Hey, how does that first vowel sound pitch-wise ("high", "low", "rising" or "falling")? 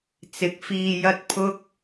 rising